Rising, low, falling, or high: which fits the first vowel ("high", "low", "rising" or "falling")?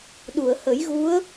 low